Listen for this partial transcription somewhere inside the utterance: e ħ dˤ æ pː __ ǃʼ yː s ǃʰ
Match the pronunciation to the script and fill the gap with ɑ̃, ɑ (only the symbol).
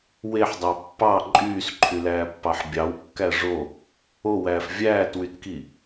ɑ